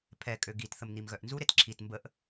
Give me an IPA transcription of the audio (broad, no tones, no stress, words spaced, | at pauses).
pʰɛkʼø ɡitθəmn̪imɣœʔ nzuɾet ǁʰit mbəʔ